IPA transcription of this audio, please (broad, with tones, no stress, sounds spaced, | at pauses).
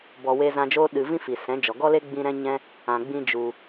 b ɔ˨ w e˧ z ã˧ d͡ʒ oː˦ ɗ ɨ˧ v ĩ˦ f i˨ s ɛ̃˨˦ d͡ʒ ɔ˨ ɡ ɔ˦ l e˦ ɡ͡b ĩ˦ ɾ ɛ̃˦ ɲ ɛ̃˦ | ã˨ ɡ͡b ĩ˦ d͡ʒ u˧